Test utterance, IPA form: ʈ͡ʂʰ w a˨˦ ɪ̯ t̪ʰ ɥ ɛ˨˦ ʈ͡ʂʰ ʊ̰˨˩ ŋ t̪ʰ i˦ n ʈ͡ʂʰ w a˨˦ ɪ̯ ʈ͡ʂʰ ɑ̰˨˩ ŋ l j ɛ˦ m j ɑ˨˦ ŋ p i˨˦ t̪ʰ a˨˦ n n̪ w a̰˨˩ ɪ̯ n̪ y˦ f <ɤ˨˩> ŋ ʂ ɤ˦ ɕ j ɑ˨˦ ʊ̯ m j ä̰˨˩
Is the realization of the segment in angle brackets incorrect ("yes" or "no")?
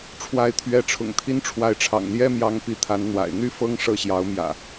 yes